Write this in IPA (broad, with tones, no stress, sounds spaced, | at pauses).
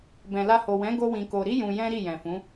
b ɛ̃˨ l a˧ h o˨ w ɛ̃˨˦ ɡ o˦ w ĩ˧ k o˧ ɾ i˦ j ũ˧ j ɛ̃˦ ɾ i˦˨ j ɛ̃˨ f ũ˨˦